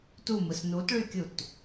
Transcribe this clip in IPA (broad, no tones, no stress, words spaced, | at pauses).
tumɯs nutɭykʲut